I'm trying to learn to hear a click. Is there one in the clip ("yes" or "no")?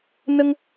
no